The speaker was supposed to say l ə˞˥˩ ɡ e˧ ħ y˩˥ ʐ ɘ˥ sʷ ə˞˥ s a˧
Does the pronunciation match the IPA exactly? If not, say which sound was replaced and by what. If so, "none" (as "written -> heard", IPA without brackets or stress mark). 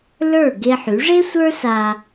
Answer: ɘ˥ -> e˥